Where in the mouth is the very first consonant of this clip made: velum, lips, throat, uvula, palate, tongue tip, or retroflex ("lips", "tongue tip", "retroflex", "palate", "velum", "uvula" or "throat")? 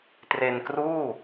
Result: tongue tip